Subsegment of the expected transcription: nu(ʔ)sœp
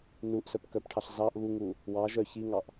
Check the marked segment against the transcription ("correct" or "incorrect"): correct